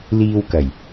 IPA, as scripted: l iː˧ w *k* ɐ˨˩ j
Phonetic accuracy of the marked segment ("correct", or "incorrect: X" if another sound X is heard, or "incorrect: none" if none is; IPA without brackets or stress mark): correct